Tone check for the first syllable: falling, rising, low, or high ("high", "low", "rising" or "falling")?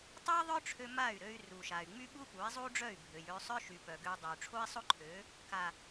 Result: high